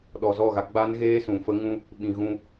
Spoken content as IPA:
ɗ ɔ˨ z ɔ˦˨ ɣ a˧ ɡ͡b a˦ n ɣ eː˦ s ũ˨ f ə˦ ŋ ũ˦ | ɓ ĩ˨ ɣ ũ˧

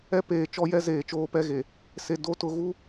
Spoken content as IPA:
ɛ˦ p eː˨ t͡ʃ ɔ˦ j ɛ˦ z eː˨ t͡ʃ oː˦ p ɛ˦ ɣ e˨ | s e˨ d o˦ t ʊ˨ ɣ u˦

